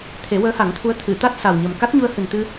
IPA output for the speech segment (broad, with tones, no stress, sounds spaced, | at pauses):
t̪ʰ e˨˩˦ w əː˧˥ h a˨˩˦ ŋ t̪ʰ u˧˥ ə̯ t̪ʰ ɨ˨˩˨ t̪ a˦˥ t̚ s a˨˩ w ɲ ə˨˩ m k a˦˥ t̚ ɲ u˧ ə̯ h ɨ˨˩ n t̪ ɨ˧